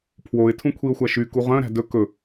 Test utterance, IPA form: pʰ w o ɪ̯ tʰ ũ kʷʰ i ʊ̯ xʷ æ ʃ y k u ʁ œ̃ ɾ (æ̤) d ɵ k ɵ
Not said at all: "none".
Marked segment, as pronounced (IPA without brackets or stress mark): æ̤